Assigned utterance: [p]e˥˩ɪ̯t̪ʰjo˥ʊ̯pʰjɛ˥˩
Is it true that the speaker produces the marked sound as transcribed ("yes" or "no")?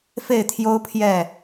no